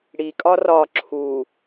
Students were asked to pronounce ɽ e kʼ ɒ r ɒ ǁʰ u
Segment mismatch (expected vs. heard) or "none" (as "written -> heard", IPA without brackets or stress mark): e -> i